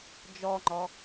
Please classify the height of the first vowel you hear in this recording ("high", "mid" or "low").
mid